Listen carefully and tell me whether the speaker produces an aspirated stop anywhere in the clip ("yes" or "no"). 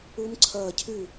yes